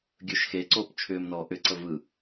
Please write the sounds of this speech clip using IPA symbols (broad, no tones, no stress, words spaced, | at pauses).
ɡʲɵʃ xeǀoːp t͡ʃʰʏːmnɔː ʔʏǀə vɯ